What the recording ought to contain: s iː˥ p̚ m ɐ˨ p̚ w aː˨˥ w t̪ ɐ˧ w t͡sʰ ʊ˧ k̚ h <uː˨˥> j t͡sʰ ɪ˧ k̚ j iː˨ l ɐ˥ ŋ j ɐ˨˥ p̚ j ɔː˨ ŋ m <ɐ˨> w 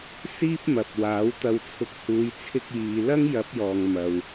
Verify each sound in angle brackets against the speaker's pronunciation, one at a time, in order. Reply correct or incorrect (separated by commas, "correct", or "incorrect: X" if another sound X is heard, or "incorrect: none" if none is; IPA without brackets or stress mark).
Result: incorrect: uː˨˧, correct